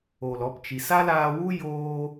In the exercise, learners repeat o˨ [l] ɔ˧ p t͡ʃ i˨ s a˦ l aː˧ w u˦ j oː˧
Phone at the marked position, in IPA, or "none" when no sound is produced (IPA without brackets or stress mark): l